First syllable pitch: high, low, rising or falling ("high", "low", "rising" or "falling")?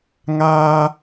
high